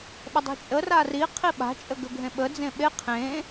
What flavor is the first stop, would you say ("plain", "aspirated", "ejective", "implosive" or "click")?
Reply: implosive